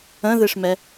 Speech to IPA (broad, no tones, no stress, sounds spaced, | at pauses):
ə̃ ð ɨ ʂ m ɛ